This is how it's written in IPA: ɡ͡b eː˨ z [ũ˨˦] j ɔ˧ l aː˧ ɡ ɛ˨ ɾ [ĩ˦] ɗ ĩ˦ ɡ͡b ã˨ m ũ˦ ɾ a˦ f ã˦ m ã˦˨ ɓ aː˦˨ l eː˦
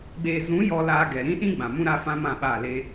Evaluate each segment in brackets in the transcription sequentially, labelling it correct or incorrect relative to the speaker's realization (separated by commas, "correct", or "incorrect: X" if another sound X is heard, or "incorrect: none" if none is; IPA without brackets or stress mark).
correct, correct